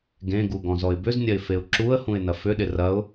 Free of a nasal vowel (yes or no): no